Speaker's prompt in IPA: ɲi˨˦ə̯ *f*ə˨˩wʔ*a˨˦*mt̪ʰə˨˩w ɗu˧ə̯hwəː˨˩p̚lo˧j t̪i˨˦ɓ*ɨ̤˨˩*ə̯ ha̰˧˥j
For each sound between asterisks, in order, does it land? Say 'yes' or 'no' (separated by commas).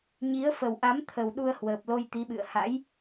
yes, yes, no